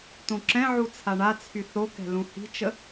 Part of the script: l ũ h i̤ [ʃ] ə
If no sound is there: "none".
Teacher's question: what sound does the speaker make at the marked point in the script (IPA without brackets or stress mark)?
t͡ʃ